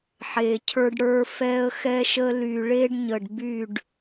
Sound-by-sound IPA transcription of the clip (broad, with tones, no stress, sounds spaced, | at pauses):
ħ e˨ cʰ ə˞˦ ɖ ɽ ə˞˦ f ɛ˦ ə̯ x ɛ˦ ʃ ə˦ l y˨ ɭ e˦ ɖ ɲ ə˨ ɖ b y˦˨ ɖ